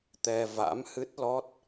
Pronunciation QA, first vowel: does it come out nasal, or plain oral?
oral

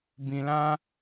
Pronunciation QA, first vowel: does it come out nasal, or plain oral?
nasal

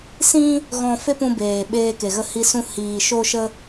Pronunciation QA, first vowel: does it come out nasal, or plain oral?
nasal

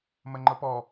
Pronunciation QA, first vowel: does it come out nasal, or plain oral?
oral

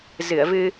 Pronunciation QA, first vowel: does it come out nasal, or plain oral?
oral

